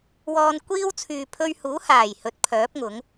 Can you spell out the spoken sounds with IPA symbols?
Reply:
wɔː˧nkʷiː˥w t͡sʰyː˨pʰɵ˧ɥhuː˨˥haː˨˩j hɵ˨˥t̚pʰœː˨˥p̚ŋʊ˨˥ŋ

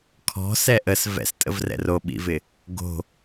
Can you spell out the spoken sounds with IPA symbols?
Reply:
kʰɔ̤sɛ ʔəs vɛ̰stʼə̰vrɛ̰ roɓḭvɪ | ɡo̤

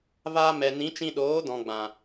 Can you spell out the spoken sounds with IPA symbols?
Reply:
vaː˧mɛ˨nĩ˨˦ t͡ʃĩ˧ɗoː˨˦dɔ̃˨ ɡ͡bã˨

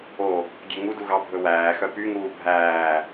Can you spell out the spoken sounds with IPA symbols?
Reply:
o | ɡʲeŋudu ɣɑbʱɵwæːxœ pyŋuː bʱæː

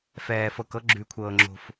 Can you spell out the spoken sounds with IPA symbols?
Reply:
fɛː˧fɤ˧k ɤ˥ɡ͡ǁʉ˧kʷʰɤː˧ŋ͡ǁo̤˧f

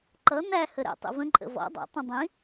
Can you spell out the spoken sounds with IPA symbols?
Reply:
ǃʌ n̪æ həɾɛ̰ tˤḭvə̃ ǃʼə̰vɔ̰ dˤɛ̰ tˤɛ̃dˤĩ

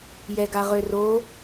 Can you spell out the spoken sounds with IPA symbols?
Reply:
jɛɡaʁøro

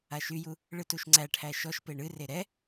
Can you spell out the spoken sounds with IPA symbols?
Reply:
aʃyju | ɭɨtuʃŋ͡ǀæʈʰæ ʃɔʃ peɳɨre ɾɛ

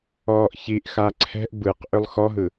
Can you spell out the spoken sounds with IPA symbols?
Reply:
ɔːʔçiʔxa ǀʰɛ̤ʔ bɯq ʔʏlˠxɔɦɯ

